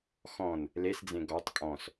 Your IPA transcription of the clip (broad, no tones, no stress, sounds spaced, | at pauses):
x ɔ̃ n | l e s d͡z ẽ ɡ ɔ tˤ kʼ ɔ̃ s